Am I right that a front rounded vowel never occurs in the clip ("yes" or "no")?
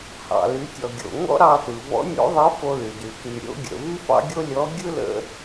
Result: no